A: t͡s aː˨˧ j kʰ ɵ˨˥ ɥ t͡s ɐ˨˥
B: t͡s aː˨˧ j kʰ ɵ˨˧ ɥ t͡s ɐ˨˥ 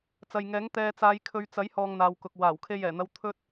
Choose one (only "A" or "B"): B